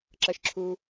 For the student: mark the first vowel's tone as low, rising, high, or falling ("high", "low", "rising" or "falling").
low